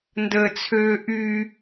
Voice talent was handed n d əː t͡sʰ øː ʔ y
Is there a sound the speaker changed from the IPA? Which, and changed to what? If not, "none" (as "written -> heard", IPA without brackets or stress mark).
none